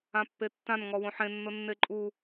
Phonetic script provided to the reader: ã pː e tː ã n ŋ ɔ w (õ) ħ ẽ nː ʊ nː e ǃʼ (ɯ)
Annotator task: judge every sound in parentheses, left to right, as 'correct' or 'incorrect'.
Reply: correct, incorrect

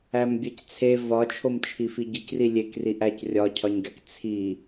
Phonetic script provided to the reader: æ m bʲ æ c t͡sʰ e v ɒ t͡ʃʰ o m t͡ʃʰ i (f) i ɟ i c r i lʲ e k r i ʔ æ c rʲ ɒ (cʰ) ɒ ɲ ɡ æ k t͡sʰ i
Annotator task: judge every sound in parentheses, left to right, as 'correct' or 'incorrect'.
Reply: correct, correct

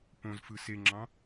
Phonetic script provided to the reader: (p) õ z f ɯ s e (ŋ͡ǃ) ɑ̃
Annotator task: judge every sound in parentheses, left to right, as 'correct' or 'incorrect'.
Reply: correct, incorrect

